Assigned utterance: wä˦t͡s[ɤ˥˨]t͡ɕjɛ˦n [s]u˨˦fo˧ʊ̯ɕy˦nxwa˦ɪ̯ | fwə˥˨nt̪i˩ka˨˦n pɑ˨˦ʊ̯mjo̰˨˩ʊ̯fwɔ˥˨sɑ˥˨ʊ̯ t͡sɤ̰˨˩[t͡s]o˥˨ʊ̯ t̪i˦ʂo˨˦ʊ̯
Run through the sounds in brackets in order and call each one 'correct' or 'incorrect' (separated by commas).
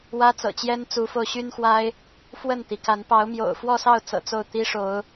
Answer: incorrect, incorrect, correct